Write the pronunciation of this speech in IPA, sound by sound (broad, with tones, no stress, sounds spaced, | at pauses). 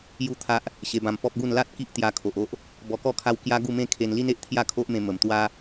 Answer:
j u˥˧ t̪ʰ a˦ ʔ | ɕ e˧ b ã˧ m p ɔ˦ p̚ ɡ u˥˧ n l a˦ t̚ k i˦ ʔ t̪ j a˧ kʰ o˨ ʔ o˦ ʔ | b ɔ˧ k ɔ˥˧ kʰ a˦ w k j a˦ ɡ u˥˧ m ẽ˥˧ kʰ e˧ n l i˦ n e˨ ʔ t̪ʰ j a˥˧ kʰ o˦ ʔ m ẽ˧ m ə˨˩ m t̪ w a˦